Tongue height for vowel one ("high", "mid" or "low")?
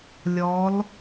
mid